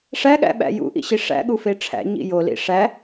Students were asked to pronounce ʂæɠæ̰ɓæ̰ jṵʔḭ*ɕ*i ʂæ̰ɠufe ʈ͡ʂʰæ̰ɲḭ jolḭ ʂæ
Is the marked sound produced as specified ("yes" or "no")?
yes